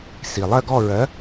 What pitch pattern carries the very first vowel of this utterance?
low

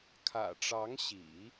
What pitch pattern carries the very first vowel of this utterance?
low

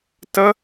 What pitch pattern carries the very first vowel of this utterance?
high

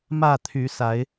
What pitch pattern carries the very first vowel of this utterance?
falling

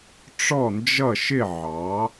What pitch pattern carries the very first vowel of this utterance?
falling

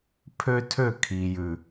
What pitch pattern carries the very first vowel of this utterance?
high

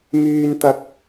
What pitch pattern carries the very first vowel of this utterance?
high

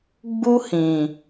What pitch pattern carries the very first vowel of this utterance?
high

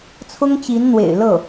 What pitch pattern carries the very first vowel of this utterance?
high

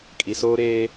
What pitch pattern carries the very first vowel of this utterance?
low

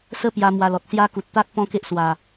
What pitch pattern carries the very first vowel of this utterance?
high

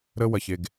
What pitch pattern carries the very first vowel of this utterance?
high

